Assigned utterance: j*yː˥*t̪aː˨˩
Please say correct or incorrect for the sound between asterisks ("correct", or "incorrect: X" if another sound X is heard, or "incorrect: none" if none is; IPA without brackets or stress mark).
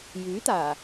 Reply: incorrect: yː˨˥